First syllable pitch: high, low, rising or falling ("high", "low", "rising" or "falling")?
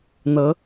rising